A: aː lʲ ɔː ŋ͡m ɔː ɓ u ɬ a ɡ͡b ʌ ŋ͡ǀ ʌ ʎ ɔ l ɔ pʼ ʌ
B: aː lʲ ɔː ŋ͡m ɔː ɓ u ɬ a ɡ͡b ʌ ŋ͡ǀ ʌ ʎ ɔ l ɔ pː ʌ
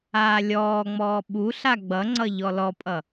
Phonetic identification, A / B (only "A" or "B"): A